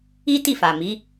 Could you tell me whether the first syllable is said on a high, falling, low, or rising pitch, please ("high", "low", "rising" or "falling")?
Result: high